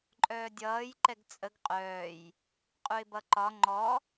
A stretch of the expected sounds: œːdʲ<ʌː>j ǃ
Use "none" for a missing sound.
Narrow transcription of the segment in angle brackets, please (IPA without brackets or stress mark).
ʌː